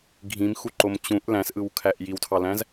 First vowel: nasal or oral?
nasal